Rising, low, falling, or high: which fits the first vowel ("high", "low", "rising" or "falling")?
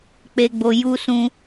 low